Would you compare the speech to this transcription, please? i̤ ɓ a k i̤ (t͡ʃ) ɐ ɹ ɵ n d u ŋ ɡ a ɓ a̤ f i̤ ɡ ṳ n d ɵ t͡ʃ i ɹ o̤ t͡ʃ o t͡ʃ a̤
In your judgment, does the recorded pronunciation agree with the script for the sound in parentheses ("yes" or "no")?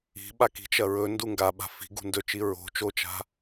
yes